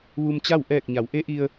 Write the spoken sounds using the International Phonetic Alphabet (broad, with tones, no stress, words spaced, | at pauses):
ʋu˧mt͡ɕa˥˨w ʔɛː˧˩k̚ ɲa˩˧wʔe˧˥ʔi˧ə̯